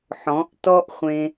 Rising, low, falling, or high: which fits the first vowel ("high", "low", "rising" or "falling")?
rising